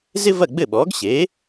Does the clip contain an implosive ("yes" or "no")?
yes